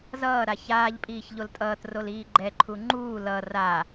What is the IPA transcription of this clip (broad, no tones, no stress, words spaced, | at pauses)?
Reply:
zʌːɾa çaːʎpʼiːç ʎoltʼʌːtrol iːɡ͡ǃɛǃʰu ŋ͡ǃuː lʌ ra